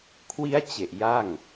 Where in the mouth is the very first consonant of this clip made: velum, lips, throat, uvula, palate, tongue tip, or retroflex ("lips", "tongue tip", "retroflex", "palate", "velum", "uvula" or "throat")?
velum